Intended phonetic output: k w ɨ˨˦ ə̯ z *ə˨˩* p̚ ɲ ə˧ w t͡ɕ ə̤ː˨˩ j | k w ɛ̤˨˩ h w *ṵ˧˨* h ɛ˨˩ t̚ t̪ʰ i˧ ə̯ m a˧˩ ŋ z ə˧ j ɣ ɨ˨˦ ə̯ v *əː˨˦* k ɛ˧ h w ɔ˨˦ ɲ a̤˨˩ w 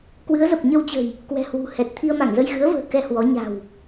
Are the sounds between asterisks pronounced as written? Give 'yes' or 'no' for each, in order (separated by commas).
yes, no, no